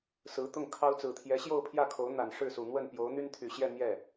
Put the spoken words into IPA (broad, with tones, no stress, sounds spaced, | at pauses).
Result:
s ɹ̩˧˥ t̪ ʊ˥˩ ŋ kʰ ɑ˥ ʊ̯ t͡s ɹ̩˨˩ t̪ʰ j ɛ˧˥ ɕ j o˥˧ ʊ̯ pʰ j ä˥˩ kʰ o˧˥ ʊ̯ n̪ a˨˩ n ʂ ɻ̩˥˩ s u˨˩ n̪ w ə˥˩ n p j o˧˥ ʊ̯ n̪ y˥ n t̪ʰ y˨˩ ɕ j ɛ˥˧ n̪ j ɛ˥˩